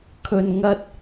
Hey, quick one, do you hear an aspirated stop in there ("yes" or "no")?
yes